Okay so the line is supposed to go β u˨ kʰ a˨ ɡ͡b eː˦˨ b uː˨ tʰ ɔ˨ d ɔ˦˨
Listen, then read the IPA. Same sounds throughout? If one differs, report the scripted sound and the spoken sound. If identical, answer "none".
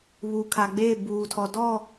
none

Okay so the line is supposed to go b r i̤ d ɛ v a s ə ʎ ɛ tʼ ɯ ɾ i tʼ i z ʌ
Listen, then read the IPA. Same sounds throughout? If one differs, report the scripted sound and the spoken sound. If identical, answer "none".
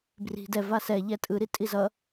ə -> ɛ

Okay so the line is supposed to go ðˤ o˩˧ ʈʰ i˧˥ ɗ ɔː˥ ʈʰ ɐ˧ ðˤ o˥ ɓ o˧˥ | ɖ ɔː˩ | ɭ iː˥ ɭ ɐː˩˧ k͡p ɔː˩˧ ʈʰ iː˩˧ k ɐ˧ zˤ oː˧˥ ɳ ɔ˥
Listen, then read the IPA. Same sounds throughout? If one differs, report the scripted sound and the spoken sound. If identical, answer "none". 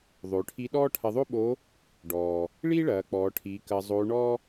none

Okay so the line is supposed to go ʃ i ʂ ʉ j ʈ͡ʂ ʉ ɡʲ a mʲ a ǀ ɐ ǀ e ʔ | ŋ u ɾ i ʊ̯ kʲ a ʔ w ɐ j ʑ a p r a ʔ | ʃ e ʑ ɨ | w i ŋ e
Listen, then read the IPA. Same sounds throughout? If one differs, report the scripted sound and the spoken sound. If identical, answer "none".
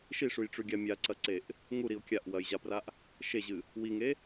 none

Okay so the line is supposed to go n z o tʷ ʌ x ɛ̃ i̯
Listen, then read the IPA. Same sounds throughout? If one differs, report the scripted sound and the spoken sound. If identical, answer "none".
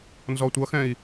o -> ɔ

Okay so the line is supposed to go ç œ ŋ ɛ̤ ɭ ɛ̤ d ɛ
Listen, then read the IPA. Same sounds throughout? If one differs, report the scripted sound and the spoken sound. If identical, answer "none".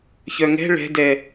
none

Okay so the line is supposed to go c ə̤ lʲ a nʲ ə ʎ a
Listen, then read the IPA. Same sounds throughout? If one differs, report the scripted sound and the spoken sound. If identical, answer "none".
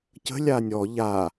ə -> ɔ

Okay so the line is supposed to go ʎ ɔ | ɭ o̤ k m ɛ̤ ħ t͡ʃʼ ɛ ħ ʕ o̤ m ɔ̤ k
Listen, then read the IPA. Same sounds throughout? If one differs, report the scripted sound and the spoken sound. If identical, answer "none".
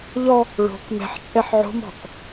none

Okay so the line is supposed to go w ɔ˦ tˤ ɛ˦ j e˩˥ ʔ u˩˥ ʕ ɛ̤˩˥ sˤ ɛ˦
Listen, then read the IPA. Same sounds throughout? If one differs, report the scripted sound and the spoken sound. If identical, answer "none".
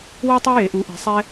ʕ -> ʔ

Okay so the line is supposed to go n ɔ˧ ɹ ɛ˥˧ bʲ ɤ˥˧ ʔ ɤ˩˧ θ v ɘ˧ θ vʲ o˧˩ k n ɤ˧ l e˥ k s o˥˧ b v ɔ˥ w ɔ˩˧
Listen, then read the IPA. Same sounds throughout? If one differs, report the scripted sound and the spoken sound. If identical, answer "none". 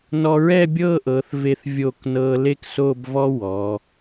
ɘ˧ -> e˧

